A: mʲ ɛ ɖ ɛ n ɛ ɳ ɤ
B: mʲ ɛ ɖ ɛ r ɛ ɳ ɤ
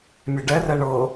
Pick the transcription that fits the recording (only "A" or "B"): B